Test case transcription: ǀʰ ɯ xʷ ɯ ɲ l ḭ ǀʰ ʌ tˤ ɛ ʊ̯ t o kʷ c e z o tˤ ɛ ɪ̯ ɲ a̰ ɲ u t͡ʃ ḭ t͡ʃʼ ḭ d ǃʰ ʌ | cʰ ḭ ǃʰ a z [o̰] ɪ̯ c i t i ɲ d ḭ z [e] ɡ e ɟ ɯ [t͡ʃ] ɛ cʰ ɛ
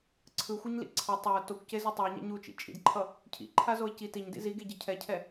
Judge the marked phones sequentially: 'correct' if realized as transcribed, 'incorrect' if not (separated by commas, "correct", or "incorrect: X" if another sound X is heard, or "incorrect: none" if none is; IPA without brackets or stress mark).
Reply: incorrect: o, incorrect: i, incorrect: cʰ